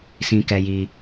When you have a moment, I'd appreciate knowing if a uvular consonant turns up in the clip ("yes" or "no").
no